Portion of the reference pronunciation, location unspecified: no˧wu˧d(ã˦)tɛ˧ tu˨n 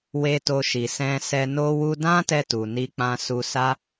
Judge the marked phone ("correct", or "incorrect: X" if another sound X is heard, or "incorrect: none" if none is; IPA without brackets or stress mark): correct